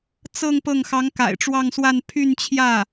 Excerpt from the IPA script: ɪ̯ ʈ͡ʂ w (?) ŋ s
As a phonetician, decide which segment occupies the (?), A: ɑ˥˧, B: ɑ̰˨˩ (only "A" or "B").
A